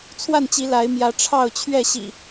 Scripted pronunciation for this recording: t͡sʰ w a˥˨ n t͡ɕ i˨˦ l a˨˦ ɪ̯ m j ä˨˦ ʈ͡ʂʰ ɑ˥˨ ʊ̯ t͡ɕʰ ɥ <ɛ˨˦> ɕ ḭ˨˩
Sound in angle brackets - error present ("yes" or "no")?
yes